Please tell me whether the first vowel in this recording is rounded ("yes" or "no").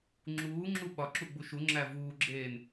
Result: yes